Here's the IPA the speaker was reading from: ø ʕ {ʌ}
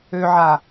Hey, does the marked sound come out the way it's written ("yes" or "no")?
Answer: no